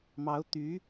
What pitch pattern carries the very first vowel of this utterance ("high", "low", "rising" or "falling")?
rising